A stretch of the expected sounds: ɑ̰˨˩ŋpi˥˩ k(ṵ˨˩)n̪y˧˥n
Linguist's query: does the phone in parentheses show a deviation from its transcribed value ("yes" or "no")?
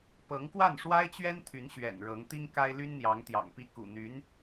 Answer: no